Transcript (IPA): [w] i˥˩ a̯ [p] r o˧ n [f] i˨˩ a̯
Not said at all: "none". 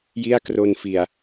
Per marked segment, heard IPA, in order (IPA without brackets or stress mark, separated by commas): j, k, f